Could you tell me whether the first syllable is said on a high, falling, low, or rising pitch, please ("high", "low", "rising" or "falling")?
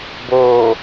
low